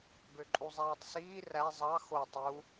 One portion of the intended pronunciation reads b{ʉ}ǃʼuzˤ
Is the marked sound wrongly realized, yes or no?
yes